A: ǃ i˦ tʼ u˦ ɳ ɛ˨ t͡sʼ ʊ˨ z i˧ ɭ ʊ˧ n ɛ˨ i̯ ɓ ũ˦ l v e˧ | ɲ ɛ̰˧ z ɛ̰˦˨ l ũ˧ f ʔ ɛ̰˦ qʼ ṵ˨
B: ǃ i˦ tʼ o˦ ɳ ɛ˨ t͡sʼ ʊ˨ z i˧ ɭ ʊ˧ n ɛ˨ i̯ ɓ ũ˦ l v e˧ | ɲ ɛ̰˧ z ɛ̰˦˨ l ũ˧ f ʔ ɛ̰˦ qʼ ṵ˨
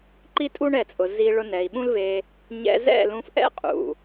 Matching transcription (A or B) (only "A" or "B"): A